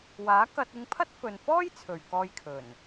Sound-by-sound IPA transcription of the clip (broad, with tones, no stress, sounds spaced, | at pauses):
w aː˨˥ k ɐ˧ t̚ ɪ˧ ŋ pʰ ɐ˥ t̚ f ɵ˨ n f ɔː˥ j t͡sʰ ɵ˨ ɥ k ɔː˧ j kʰ ɵ˨˩ n